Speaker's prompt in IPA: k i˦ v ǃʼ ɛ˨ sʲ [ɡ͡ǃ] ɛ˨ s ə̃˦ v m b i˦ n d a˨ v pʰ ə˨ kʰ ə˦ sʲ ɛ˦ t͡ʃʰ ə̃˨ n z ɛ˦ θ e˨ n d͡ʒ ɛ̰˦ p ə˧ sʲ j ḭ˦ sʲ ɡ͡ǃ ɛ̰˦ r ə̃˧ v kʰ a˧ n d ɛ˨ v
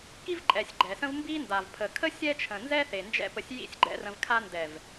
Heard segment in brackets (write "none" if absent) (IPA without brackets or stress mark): ɡ͡ǃ